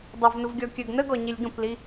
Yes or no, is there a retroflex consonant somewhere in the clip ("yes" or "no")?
no